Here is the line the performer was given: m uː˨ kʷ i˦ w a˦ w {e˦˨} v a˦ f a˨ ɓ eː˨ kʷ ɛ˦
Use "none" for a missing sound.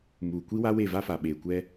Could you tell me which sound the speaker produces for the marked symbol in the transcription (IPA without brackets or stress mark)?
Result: e˦˨